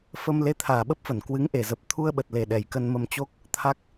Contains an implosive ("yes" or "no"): yes